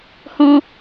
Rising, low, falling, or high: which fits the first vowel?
high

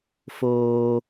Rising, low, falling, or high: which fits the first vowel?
high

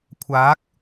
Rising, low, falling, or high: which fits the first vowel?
rising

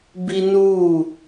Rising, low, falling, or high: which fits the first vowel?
high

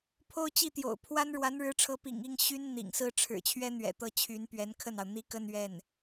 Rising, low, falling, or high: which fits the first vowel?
high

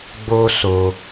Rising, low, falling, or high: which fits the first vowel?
high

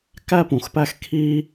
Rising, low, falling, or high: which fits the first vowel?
high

